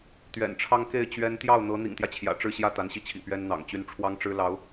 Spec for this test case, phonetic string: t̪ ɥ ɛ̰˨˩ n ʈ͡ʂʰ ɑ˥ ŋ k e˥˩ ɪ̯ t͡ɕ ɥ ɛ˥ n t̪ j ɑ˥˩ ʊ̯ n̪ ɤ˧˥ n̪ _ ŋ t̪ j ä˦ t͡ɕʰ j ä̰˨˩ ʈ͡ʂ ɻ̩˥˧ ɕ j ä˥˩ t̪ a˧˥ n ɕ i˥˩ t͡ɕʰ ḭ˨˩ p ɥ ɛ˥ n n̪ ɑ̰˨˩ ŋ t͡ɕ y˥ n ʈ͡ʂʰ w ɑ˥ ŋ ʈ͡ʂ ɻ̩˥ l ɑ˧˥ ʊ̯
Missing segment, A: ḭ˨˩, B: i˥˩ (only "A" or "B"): A